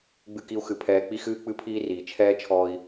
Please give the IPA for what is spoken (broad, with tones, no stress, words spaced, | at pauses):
ɡ͡bɨ˧ki˧u̯xɨ˨ pʰɛː˨k͡pi˧xɨː˧ k͡pɨ˦pʰiː˦riː˨ t͡ʃʰɛː˦t͡ʃʰɔ˧i̯